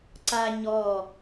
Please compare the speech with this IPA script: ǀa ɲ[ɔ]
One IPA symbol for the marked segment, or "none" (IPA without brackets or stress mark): ɔ